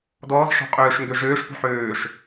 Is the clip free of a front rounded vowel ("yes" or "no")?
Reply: no